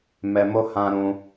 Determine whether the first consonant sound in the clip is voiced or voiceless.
voiced